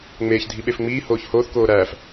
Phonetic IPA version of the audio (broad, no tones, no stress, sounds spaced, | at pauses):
ŋ͡m eː ç dʱ i ɓ e f ŋ͡m iː h oː ç h oː θ k oː ɾ æː f